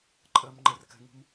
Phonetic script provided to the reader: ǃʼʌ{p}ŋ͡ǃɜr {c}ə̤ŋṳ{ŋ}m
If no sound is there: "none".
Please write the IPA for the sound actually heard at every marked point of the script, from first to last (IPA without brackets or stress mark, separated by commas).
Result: m, k, none